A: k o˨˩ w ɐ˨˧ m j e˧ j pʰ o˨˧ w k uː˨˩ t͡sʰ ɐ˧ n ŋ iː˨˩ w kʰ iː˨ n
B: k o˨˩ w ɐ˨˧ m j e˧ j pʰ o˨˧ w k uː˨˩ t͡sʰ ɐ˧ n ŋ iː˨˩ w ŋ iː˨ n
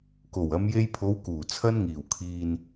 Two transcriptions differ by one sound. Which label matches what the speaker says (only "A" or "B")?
A